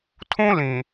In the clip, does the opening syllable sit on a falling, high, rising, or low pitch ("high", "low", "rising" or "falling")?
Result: high